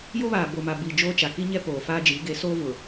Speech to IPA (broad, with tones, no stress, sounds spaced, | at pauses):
j o˦ β aː˨ b o˨ m a˨ b i˨ d͡ʒ oː˦ t͡ʃ a˨ k i˦ ɲ ɛ˦ p oː˨ f aː˦ d͡ʒ i˨˦ ɡ e˨˦ s oː˦ v ʊ˨